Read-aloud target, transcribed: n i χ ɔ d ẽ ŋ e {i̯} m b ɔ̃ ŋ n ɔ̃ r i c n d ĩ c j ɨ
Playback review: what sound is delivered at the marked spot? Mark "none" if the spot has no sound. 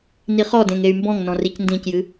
y̯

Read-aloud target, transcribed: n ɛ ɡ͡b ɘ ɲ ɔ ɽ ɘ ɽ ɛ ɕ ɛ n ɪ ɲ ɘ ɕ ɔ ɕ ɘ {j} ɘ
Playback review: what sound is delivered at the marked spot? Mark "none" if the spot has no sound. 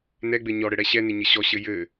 j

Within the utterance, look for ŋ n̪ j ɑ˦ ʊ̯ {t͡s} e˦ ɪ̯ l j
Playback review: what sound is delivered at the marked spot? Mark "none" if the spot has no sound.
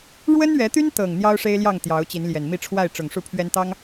ʂ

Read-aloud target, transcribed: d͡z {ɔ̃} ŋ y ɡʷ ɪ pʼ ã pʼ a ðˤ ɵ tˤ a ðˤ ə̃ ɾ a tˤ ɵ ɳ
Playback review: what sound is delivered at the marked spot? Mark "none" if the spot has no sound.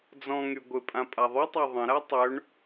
ɔ̃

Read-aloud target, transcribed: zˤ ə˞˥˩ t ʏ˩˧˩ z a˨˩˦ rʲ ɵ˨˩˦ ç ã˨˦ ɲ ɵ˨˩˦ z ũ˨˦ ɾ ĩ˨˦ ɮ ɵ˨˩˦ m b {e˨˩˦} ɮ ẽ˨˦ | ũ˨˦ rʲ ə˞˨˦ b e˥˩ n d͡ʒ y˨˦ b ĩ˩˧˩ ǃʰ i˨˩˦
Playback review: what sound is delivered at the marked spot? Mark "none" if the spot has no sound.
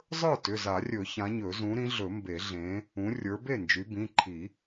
e˨˩˦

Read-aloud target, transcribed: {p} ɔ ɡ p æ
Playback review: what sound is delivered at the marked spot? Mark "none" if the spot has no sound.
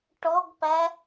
ʈ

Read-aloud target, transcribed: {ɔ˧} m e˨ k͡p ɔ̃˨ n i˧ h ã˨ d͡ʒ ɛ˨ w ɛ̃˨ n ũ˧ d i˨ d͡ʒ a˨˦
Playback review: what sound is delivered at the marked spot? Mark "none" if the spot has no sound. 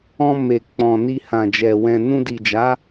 ɔ̃˧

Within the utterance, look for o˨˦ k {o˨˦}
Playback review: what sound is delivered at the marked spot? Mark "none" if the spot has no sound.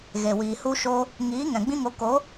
o˨˦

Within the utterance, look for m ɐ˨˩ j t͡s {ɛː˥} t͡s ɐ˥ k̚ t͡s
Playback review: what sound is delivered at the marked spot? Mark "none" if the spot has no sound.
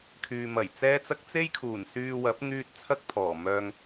ɛː˥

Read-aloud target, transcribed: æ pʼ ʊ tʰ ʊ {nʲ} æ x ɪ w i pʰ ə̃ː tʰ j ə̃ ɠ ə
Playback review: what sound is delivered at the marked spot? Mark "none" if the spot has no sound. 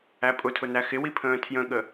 n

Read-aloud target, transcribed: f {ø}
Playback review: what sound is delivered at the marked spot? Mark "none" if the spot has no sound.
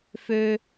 ø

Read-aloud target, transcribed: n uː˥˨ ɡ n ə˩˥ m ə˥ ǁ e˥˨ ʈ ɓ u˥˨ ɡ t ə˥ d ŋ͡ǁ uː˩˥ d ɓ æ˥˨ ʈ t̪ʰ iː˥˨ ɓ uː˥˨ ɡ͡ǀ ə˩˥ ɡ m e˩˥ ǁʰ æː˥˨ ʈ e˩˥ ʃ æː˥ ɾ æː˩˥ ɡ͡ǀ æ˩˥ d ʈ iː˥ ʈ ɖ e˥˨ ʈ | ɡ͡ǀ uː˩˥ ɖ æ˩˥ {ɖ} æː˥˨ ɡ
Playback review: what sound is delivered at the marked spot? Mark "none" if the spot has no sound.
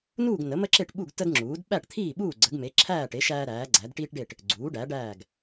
ɖ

